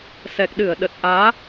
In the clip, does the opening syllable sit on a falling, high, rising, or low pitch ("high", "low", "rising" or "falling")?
low